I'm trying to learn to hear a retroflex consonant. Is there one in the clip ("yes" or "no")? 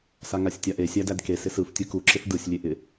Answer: no